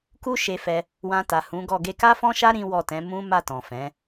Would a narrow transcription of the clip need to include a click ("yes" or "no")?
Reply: no